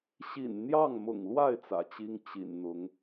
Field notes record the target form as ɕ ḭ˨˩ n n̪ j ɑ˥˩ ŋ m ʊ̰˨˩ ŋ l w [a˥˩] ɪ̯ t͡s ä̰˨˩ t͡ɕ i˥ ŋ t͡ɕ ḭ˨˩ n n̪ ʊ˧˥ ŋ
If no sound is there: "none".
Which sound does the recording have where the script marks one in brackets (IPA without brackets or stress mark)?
a˥˩